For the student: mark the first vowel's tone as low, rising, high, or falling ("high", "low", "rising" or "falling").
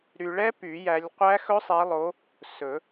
low